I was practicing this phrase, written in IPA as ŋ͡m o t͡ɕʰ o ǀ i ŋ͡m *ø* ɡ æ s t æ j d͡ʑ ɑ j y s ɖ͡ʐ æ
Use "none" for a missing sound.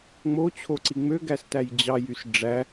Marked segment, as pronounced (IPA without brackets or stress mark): ø